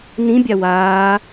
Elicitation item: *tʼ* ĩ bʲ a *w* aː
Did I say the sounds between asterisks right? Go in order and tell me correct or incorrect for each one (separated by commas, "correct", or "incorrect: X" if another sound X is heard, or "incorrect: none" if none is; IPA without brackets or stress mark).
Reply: incorrect: n, correct